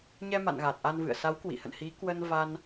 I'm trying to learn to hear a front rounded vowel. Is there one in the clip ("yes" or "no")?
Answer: no